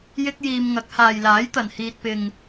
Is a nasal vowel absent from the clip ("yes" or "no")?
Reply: yes